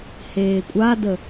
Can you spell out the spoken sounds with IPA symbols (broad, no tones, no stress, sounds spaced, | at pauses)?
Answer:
h eː kʷʼ a d ə